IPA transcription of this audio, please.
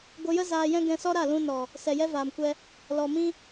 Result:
ɡʷ ə˧ j ə˦ z aː˧ j ɛ̃˦ ɡ ɛ̃˧ s ɔ˦ ɾ a˦˨ l ũ˧ n ɔ˨ | s ɛ˨ j ɛ˦ v aː˨ m kʷ ɛ˧ | l ɔ˨ m ĩ˦

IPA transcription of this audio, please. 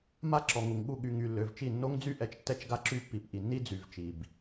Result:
m a˦ ǁ ɔ˨ ŋ u˨ ŋ ɠ u˦˨ ɠ y˨ ŋ y˨ lː ø˨ v t͡ʃ i˦˨ nː o˦ ŋ d͡z y˦ ʔ ɛ˨ t͡ʃ tː ɛ˦ t͡ʃ ɡ a˦ ǁ y˦ pː i˨ p ʔ i˨ nː i˦ d͡z y˨ v t͡ʃ i˨ b

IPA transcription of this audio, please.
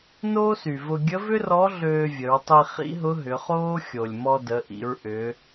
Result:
n oː˥ s y˩ v ʊ˧ ɡʲ ə˧˥ v ʏ˥ r ɔ˧˥ ɮ øː˧ vʲ ə˩˧ ɹ tˤ i˧ χ ḭ˧˥ ɦ ʊ˧˥ ɦ ʏ˩˧ χ oː˥ xʲ o˩ lʲ m ɔ˧ d ə˩˧ ʔ ḭ˩˧ ɹ ʔ ʏ˩˧

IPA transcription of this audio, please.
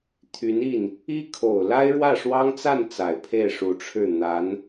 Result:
t̪ʰ y˧˥ n i˥˩ n | i˥ kʰ o˨˩ ʊ̯ l a˥ ɪ̯ ɻ w ä˥˩ ʂ w ɑ˥ ŋ t͡s a˥˩ n t͡s a˨˩ ɪ̯ pʰ e˥˩ ɪ̯ ʂ u˧˥ ʈ͡ʂʰ ɻ̩˥˩ n̪ a˧˥ n

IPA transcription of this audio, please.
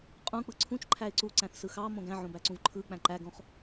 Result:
qʼ ũ k͡p ɯ ǀʰ ũ t͡ʃ ǃʰ æ ɪ̯ ǀ u ǀ æ̃ θ s ɯ x ɑ m õ ɡ æ̃ ʕ õ b æ ǀ ũ v ǃʰ ɯ k͡p æ̃ ǃ æ ɡ õ χ

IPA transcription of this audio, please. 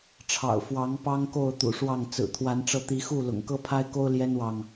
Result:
ʈ͡ʂʰ ɑ̰˨˩ ʊ̯ f w ɑ˨˦ ŋ p ɑ˦ ŋ k o˥˨ ʊ̯ t̪ ṵ˨˩ ʂ w ɑ˥˨ ŋ t͡s ɹ̩˨˩ t̪ʰ w a˨˦ n ʈ͡ʂ ɤ˧ t̪ i˨˦ x u˥˨ l ʊ̰˨˩ ŋ k ɤ˦ pʰ a˦ ɪ̯ k o˦ ʊ̯ l j ɛ˦ n w ɑ˨ ŋ

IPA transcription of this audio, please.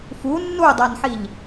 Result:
f u nː u dˤ a n ħ i ʎ

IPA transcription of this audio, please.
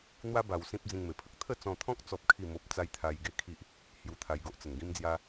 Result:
n̪ w a˦ b a˧ w s ĩ˦ p̚ d͡z ĩ˧ ŋ m e˨˩ pʰ ə˨ k̚ t̪ʰ ə˥˧ t͡s ɔ̃˧ t̪ʰ ɔ̃˦ k̚ t͡s ɔ˦ p̚ kʰ i˥˧ m o˦ p̚ t͡s a˦ j t̪ʰ a˧ j ɡ e˦ kʰ i˦ ʔ | h j u˧ t̪ʰ a˧ j ɡ o˦ ʔ t͡s ə˨˩ n ɡ ĩ˦ m d͡z j a˦

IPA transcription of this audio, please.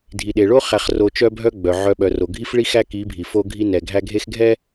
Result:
dʱ i˨ ɗ e˨ ɭ o˦ χ æ˨ χ r o˨ t͡ʃ œ˦ bʱ œ˦ ɡ͡b œ˨ ʕ œ˨ ɓ œ˨ r o˨ ɡʱ i˦ f ɭ i˦ x æ˦ k i˨˦ bʱ i˨ f o˦ ɡʱ i˦ n ɛ˨ ɡʱ æ˦ ɡʱ e˦ x ɡʱ ɛ˦

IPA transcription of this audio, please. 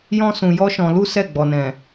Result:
j ɔ̃˦ s ũ˧ j ɔ˦ ʃ ɔ̃˧ l u˦ s ɛ˦˨ ɡ͡b ɔ˨ n ɛ̃˨

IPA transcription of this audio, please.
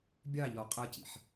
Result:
bʲ ɑ ʎ ɔ qʼ ʌ c ḭ ħ

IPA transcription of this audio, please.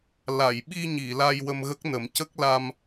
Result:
l a˨˩˨ j ɓ i˧ ɲ i˨˩˨ l a˧ j w ə˧ m ɣ ə˦˥ k̚ n ə˨˩˦ m c ə˦˥ k̚ l a˧ m

